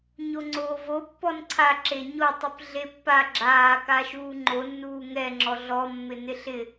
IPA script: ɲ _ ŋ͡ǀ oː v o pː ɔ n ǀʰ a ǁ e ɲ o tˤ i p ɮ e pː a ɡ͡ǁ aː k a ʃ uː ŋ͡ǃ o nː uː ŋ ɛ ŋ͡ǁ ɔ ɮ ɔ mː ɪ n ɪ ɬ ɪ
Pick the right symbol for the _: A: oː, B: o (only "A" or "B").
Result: B